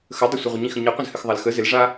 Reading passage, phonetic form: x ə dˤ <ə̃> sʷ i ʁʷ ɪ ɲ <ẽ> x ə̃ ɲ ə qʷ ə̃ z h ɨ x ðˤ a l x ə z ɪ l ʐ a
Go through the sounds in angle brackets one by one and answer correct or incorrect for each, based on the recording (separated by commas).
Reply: incorrect, incorrect